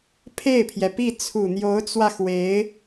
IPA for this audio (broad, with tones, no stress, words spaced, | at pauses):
pʰe˥˩ɪ̯pʰjɛ˩pi˥˩ t͡sʰu˨˩n̪jo˧˥ʊ̯t͡swä˧ xwe˧˥ɪ̯